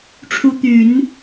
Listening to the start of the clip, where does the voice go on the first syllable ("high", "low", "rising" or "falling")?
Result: rising